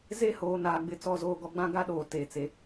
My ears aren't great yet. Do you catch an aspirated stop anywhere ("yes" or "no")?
no